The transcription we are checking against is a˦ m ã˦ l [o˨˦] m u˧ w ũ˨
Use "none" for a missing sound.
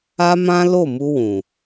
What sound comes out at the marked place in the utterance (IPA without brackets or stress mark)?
o˦˨